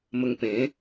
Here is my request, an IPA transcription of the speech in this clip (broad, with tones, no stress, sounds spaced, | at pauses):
m ə˧ ŋ p ẽ˨˦